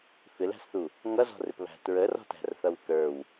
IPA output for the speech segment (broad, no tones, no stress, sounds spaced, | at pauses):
f ɪ l æ̤ s θ u | ŋ ʌ z ɔ̤ r ɪ p β æ̤ t ɹ ə r ɔ̤ t æ̤ r θ ʌ w θ ə˞ w